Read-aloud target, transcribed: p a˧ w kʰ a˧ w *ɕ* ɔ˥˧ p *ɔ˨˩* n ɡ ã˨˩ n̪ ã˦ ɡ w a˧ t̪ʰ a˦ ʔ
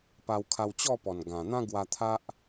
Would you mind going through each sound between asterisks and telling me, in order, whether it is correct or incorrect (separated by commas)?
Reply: incorrect, correct